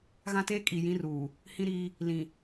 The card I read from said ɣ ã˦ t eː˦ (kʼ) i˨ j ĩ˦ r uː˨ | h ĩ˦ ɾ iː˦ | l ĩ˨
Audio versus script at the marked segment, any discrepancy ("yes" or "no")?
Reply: no